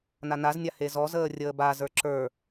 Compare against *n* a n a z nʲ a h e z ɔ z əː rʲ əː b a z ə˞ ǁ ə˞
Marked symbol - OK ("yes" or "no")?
yes